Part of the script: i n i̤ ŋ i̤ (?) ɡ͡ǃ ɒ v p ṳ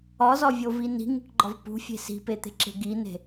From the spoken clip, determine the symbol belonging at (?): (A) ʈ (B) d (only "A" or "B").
A